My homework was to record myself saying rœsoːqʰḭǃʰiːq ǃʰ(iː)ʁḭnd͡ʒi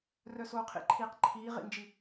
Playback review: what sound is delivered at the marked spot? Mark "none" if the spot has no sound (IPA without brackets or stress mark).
iː